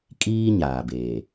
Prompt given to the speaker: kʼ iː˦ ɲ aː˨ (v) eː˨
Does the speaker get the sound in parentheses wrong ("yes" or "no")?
yes